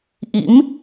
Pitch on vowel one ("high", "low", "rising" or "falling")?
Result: rising